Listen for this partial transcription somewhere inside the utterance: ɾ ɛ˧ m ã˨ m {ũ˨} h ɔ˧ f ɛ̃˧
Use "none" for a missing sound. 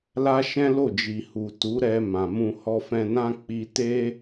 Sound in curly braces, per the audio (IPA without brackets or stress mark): ũ˧